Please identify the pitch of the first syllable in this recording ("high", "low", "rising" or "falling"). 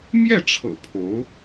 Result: falling